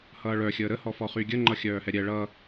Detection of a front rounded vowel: present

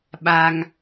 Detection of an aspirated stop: absent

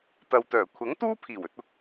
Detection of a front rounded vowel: present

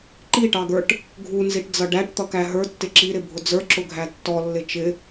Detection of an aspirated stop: absent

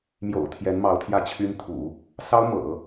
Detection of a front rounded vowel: present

